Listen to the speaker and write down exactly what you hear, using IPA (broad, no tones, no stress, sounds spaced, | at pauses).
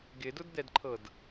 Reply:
ɡ ɪ d ʊ d d̪ ɛ d ǃʰ ɤ d